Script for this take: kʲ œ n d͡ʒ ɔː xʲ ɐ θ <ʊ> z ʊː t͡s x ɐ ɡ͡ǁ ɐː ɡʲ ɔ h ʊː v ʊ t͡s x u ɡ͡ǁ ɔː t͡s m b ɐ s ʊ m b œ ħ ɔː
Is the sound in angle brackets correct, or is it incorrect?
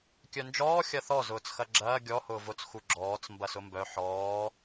incorrect